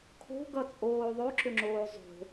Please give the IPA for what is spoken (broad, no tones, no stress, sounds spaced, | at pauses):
kʰ o̤ ɡ ʌ t͡sʼ oː ðˤ o ǁ ʏ ŋ͡ǁ oː zˤ o̤